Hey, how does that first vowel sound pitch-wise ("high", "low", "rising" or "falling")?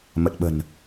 low